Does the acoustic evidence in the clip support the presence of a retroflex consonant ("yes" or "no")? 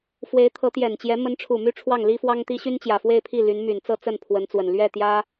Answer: yes